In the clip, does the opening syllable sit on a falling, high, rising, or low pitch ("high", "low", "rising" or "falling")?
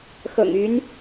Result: low